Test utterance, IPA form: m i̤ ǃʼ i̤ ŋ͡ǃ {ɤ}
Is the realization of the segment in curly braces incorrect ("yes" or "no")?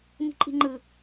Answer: yes